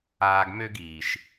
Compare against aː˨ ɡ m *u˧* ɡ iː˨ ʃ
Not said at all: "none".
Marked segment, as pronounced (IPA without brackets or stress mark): ø˧